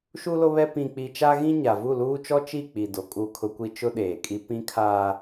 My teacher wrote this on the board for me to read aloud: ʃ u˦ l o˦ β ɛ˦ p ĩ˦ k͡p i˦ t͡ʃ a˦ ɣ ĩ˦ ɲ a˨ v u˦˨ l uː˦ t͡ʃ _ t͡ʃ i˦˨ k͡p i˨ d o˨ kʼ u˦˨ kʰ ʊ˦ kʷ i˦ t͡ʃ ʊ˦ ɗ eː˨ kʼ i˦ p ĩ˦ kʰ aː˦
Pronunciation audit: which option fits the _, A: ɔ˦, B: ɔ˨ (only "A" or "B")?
A